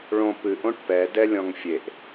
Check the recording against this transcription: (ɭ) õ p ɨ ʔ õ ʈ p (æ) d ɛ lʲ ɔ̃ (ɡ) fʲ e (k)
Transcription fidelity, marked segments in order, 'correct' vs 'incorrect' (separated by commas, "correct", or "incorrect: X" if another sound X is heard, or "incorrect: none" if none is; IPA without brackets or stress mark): correct, incorrect: ɛ, incorrect: ŋ, incorrect: ʔ